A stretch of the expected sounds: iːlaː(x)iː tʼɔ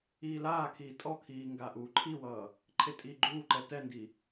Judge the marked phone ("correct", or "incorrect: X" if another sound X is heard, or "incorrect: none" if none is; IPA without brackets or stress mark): incorrect: kʰ